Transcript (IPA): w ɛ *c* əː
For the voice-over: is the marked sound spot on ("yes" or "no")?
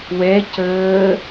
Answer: yes